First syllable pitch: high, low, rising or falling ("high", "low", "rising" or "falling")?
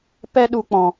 high